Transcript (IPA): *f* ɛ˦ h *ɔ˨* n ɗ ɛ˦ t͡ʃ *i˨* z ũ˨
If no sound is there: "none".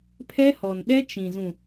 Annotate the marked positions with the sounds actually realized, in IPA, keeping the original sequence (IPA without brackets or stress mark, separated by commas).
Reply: pʰ, ɔ˨, ĩ˨